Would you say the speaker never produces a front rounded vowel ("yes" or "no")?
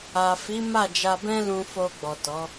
yes